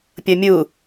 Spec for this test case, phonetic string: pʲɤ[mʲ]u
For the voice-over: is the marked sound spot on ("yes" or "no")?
yes